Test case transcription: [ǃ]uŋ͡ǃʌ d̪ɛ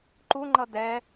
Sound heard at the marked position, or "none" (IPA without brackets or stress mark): ǃ